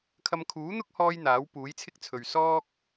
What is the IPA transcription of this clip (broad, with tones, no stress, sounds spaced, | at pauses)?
kʰ ɐ˧ m kʰ uː˨˥ n̪ ʊ˥ k̚ h ɔː˧ j n̪ aː˨˥ w p uː˨˥ j t͡sʰ ɪ˥ k̚ t͡sʰ ɵ˨ ɥ s ɔː˥ k̚